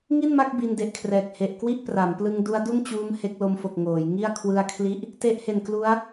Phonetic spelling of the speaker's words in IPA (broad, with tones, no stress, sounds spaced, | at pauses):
ŋ i˥˩ n m a˥˩ k̚ b i˧ n d e˨˩ ʔ kʰ r ɛː˨˩ k̚ h e˨˩ ʔ k w i˥˩ ʔ p r a˩˦ m p l ɯ˧ ŋ d u˦˥ a̯ d u˥˩ n t͡ɕ uː˦˥ m h e˦˥ k̚ l o˧ m f o˨˩ k̚ ŋ oː˩˦ j ŋ i˥˩ a̯ kʰ w ɯ˧ a̯ kʰ l i˦˥ ʔ | t e˦˥ ʔ h e˨˩ n k l u˦˥ a̯